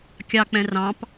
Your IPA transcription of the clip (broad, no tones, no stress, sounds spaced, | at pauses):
kʲ ɑ k͡p ɛ̃ r ɑ̃ p